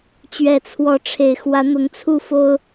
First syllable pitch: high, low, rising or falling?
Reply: low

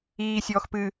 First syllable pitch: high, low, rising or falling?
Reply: low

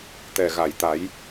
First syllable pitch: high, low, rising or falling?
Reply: low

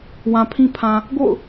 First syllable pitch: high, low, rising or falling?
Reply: low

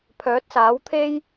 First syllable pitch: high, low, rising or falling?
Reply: rising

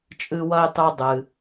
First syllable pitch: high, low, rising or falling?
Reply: high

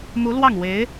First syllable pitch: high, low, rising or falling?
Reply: rising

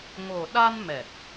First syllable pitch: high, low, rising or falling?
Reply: low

